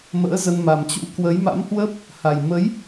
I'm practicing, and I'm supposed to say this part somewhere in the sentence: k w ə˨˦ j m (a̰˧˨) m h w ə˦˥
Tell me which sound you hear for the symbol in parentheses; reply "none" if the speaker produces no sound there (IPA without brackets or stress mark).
a̰˧˥